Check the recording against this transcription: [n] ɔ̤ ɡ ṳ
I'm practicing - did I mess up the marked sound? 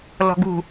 yes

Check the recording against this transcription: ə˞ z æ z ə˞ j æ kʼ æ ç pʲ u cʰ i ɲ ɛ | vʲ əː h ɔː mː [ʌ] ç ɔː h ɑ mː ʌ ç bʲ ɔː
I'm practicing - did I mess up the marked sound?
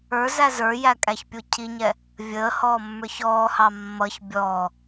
yes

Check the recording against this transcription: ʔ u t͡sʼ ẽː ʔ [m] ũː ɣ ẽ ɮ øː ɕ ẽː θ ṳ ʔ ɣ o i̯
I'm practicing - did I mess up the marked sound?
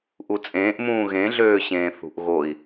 no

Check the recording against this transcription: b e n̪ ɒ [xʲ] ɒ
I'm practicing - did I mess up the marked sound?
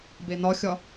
no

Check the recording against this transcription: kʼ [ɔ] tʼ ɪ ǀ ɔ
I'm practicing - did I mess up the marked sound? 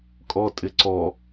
no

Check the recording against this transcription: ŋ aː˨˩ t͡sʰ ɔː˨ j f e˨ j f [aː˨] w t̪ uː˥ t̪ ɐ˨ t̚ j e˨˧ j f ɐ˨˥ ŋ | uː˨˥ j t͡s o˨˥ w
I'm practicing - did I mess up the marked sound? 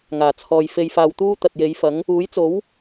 no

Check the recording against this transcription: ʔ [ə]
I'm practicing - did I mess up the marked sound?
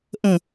yes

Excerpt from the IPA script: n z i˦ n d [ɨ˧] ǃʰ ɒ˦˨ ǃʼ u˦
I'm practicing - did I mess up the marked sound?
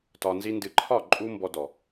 no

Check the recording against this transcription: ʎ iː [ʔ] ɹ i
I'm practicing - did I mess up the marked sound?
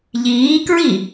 yes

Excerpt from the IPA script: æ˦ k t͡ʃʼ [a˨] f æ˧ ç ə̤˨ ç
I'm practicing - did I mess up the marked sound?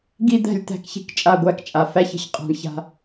no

